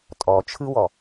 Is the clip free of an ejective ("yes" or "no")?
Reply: no